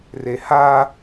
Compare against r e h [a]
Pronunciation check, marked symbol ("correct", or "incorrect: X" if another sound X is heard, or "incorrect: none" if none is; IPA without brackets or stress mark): correct